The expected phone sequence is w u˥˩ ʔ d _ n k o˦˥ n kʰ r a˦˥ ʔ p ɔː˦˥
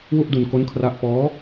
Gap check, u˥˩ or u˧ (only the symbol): u˧